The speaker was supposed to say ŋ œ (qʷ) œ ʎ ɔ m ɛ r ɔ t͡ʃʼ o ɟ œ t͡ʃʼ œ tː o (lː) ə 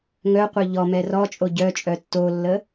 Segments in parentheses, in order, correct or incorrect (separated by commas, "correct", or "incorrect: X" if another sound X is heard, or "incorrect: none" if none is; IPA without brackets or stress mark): correct, correct